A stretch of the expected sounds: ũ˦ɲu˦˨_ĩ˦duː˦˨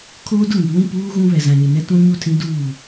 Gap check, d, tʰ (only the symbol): tʰ